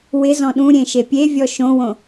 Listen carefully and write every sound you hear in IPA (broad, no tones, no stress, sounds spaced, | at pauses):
w ɪ z ɔ̃ ɗ ũ ɾʲ ẽ ʃ e pʲ e vʲ ɔ ʃ õ w õ